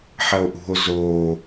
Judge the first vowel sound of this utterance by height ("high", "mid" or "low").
low